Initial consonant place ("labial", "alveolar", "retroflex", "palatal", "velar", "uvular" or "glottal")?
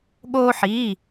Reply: velar